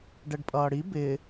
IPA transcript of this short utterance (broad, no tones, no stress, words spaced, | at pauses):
ɖɛɖpʼʌːɽi bɪ